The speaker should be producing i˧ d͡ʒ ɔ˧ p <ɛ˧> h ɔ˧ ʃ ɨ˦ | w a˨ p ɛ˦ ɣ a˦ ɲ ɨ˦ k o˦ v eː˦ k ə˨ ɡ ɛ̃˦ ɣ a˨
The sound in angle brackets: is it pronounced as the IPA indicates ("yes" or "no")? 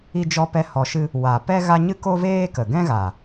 yes